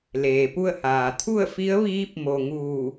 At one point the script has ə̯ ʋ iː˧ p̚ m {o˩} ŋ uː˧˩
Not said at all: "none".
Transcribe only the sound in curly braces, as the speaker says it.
o˩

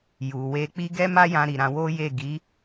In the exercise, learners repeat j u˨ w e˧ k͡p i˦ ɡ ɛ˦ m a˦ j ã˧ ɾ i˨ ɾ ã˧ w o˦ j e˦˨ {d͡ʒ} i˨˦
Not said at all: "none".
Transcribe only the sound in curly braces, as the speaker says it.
ɡ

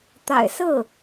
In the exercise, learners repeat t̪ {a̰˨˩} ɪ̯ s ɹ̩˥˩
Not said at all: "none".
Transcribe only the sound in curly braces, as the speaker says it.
a̰˨˩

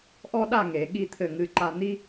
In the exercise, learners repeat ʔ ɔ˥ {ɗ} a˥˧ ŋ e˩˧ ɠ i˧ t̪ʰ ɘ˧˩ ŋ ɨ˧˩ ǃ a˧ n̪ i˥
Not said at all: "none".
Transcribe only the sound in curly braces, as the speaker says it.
ɗ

